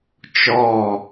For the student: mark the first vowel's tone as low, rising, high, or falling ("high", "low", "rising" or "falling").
falling